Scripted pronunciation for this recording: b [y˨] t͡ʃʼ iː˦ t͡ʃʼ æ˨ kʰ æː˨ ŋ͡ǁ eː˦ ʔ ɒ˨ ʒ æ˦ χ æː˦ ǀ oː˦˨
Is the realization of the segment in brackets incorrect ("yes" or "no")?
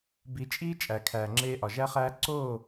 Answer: yes